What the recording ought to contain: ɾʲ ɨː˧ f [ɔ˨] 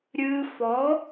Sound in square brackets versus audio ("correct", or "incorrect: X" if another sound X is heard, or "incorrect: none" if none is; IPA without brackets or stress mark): incorrect: ɔ˨˦